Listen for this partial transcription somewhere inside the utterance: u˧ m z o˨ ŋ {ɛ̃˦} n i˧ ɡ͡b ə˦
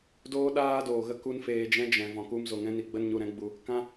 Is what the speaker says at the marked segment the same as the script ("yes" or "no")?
yes